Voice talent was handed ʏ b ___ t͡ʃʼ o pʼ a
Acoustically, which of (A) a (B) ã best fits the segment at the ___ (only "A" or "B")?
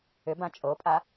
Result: B